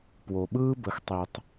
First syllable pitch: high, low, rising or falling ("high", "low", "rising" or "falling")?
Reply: low